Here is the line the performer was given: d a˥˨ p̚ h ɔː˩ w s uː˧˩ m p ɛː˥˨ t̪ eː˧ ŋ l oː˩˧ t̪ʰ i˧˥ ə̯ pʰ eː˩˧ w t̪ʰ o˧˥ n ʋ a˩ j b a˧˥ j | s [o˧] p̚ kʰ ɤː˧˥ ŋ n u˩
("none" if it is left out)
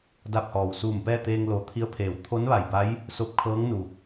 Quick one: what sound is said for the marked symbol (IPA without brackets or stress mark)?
o˧